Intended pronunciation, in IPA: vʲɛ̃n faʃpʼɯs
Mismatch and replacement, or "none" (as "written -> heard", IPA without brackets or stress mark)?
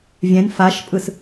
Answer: none